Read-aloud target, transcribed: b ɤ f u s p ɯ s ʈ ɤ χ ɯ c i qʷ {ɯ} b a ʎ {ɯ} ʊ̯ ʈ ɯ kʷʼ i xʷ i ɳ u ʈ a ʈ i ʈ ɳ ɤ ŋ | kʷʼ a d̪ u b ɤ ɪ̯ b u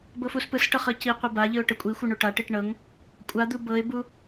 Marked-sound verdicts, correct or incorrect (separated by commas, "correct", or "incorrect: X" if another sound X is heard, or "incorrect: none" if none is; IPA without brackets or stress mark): correct, correct